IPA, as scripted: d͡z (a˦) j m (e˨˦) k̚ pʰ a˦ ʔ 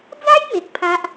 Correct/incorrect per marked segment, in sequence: correct, incorrect

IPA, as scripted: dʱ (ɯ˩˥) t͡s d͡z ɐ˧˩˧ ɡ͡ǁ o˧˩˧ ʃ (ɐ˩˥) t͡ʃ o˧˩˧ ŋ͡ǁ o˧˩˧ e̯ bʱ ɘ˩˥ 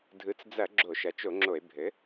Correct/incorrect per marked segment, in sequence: correct, correct

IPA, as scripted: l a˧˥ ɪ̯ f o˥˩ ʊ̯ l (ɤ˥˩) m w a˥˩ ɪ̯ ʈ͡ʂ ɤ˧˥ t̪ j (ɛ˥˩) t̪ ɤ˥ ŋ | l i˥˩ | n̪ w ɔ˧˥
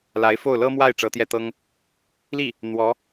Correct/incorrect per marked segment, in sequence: incorrect, correct

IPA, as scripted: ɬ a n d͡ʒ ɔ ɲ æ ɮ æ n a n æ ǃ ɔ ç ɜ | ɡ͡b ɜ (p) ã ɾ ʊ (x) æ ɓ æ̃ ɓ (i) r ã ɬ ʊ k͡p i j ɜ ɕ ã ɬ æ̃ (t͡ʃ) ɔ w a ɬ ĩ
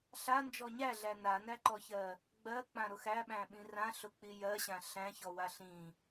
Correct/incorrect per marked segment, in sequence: incorrect, correct, incorrect, incorrect

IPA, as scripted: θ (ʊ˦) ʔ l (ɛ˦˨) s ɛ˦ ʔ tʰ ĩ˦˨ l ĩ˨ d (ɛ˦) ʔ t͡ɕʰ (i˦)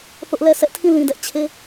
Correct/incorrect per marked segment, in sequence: correct, correct, correct, incorrect

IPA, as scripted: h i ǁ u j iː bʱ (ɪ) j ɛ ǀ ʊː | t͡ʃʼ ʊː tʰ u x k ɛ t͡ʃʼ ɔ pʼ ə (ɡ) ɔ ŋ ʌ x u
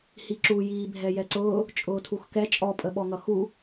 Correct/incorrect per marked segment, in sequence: incorrect, incorrect

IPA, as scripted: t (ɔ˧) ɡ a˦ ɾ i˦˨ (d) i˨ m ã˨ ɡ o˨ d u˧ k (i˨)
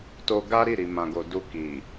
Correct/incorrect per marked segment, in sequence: incorrect, incorrect, correct

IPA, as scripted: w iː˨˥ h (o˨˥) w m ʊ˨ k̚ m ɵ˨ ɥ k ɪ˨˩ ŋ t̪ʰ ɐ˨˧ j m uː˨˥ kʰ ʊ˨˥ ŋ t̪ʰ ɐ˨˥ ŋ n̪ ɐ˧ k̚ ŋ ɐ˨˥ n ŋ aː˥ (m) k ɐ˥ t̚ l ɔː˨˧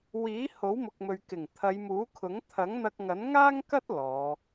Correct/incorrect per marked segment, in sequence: correct, incorrect

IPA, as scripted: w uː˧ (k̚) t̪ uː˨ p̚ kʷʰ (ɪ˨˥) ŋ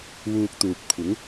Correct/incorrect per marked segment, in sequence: correct, correct

